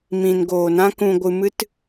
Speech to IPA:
m ĩ˨ n ɡ oː˨ n ã˦ k ũ˧ ɡʷ ɨ˧ m ɨ˦ t

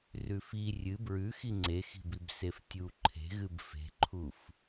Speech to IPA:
r ʉ f i rʲ ɨ b ɹ ʉ x i ŋ͡ǀ e x i̤ b i b s e f tʲ u ǃʰ e̤ ɣ ɨ b f e̤ ǃʰ u f

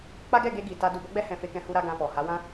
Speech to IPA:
k͡p a˦ ɡ ɛ˦˨ ɡ e˧ ɡ i˨ t a˧ d u˨ b ɔ˨˦ ɡ͡b ɛ˧ h ɛ̃˨ f e˧ k ɛ̃˧ h u˦ ɾ a˦ ɡ ã˧ f ɔ˨ h a˨˦ w ã˦

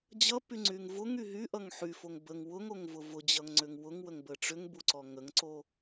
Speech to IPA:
d͡ʑ ʌ p y ŋ͡ǀ y ŋ v ʊ ŋ y ɦ y ʔ ʌ ŋ ħ y f o ŋ b ə ŋ w ʊ ŋ o ŋ v ʊ v ʊ d͡ʑ ʌ ŋ ŋ͡ǀ ʏ ŋ w ʊ ŋ w ə ŋ b ə ʈ͡ʂ ʏ ŋ b u ǀ ɔ ŋ ə ŋ ǀ o

